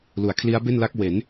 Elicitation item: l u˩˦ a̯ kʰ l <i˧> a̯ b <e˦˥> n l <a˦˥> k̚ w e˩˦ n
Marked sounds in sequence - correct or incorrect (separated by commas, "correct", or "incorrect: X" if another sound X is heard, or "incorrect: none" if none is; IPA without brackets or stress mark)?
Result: incorrect: i˦˥, incorrect: e˥˩, correct